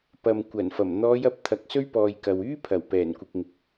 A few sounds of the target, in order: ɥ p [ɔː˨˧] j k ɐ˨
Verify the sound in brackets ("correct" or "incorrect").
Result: incorrect